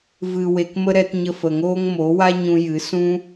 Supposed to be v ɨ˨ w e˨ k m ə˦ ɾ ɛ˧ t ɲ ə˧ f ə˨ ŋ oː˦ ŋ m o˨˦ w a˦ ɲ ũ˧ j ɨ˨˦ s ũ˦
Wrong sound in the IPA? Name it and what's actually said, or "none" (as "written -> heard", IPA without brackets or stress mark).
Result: none